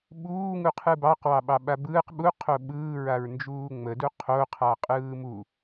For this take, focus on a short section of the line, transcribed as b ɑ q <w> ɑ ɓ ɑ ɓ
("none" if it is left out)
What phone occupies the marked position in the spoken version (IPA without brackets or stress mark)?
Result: w